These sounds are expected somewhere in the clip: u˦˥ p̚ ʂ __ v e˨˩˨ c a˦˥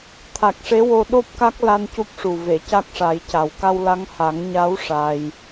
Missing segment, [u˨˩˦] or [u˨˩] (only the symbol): u˨˩